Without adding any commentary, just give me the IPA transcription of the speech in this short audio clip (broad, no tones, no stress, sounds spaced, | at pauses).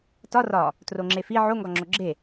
t ɒ r ɒ | t r o ŋ͡ǁ e f i ʕ o ŋ ɡ ɒ ŋ͡ǁ o ɡ͡ǁ e